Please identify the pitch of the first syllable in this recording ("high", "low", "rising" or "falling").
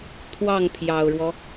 falling